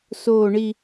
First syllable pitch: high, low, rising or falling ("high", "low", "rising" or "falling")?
low